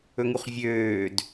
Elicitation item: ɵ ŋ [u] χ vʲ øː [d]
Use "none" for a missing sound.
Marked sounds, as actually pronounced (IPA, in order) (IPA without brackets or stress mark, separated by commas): u, d